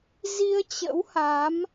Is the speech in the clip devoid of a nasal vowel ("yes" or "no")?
yes